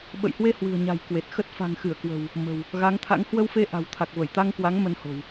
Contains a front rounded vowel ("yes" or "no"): no